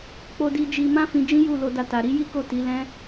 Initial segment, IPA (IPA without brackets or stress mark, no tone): k͡p